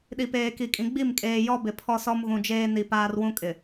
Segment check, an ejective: present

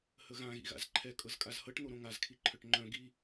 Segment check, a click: present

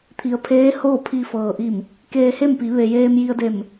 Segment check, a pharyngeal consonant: absent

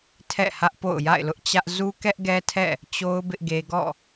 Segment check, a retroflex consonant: absent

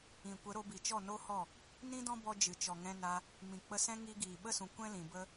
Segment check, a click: absent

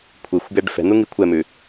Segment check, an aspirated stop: present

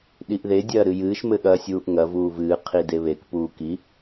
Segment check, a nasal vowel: absent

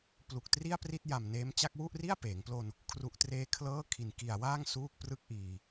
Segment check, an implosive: absent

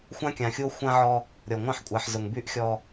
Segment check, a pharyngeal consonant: present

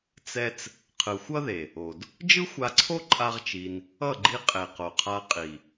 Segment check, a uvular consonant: present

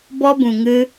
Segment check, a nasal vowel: present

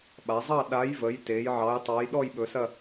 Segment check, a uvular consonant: absent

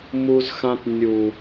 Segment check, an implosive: absent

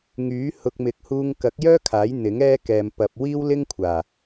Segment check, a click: absent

